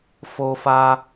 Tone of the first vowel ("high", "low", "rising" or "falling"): high